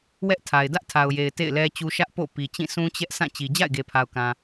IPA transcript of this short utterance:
wɛ˦ʔtʰa˨ɪ̯ dä˦ʔtʰa˨ʊ̯je˨ɪ̯ tḛ˦˨ɪ̯lɛ˦t͡ɕu˦ ʃä˦ʔ po̰˦˨ pi˨t͡ɕĩ˦˨ sũ˦t͡ɕɛ˦ʔ sʰã˦˨t͡ɕi˨ d͡ʑa̰˦˨ɪ̯ɡe˨pʰa˨ʊ̯kã˨

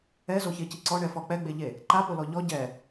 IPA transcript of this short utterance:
ɛzoçeci ǀɔɳɛfɔ k͡pɛɡ͡beʎe | ǃapolɔ ʎɔ ɟɛ

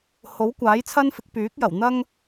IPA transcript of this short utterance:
ho˨˥wkʷaː˨˥jt͡sʰɐ˥nfɪ˨˥k̚ pyː˨˥k̚jɐ˨˩wn̪ɐ˥ŋ

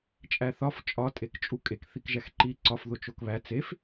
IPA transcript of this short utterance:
t͡ʃʼæθɒf t͡ʃʼɒ tʼekt͡ʃʼukʼek θikʒæxǃi ǀɒf ðot͡ʃokβæ t͡sef

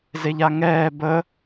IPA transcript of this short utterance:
zeʎaŋɛː bə

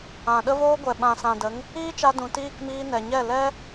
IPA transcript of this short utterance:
ã˨ ɗə˦voː˦ɡʷɛ˨ ɓã˨sã˨də˨˦ŋ | iː˦t͡ʃa˧ dũ˨˦t iː˦˨kmiː˧ nɛ˨ɲɛ˦˨ lɛ˦

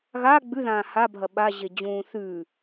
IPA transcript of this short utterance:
ɣa ɡ͡bʉðãː habʱɐ ɓaʑed͡ʑũː θʉ

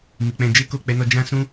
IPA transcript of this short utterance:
mi˨k͡pɛ̃˧ d͡ʒe˦ko˦˨k͡pɛ˨˦nɔ˧ d͡ʒã˦ sũ˦

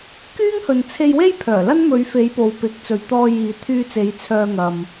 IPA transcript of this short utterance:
kyː˥ŋhɵ˨nt͡sʰe˧jwe˥j pʰœː˨˩lɐ˥n mɵ˨˧ɥ fe˨˧j po˨wpɪ˨˥k̚t͡sɵ˨ɥt̪ɔː˧ jiː˨t̪ʰyː˧t͡se˨˧j t͡sʰœː˧ŋɐ˨m

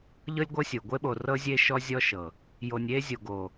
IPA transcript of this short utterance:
ʎɤ˦lʲɡʷɤ˦ sʲo˨ ɡʷe˦ɓo˨rɤ˦ zʲe˦ ʃɔ˦zʲɔ˦ʃɤ˨ | jo˨nʲe˦zʲo˨ɡo˨

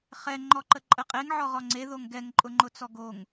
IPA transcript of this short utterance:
χɛ ŋ͡ǃɔǃəǃʼəqʼeŋ ʕɔʁɔŋ͡ǀe ðoŋɡɛŋ ǃʼʊŋ͡ǃʊt͡sɔɡoŋ

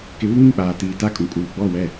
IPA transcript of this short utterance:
kɪ˨˦βu˦ŋĩ˦˨k͡paː˨ tiː˨ta˦˨kʼũ˨ kʼuː˨ɡ͡bɔ˦˨wɛ˦˨

